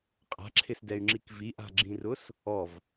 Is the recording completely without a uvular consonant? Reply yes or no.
no